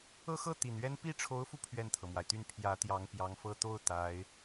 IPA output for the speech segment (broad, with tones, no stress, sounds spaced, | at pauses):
ɤ˥ x ɤ˥ t̪ i˨˩ n ɥ ɛ˥ n p i˥˩ ʈ͡ʂʰ o˧˥ ʊ̯ f u˧ pʰ ɥ ɛ˥˩ n t̪ʰ ɤ˩ m w a˩ ɪ̯ t̪ y˥˩ n pʰ j ä˧˥ t̪ j ɑ˧˥ ŋ p j ɑ˧˥ ŋ f ɤ˥˧ t̪ o˥˩ ʊ̯ t̪ a˧˥ ɪ̯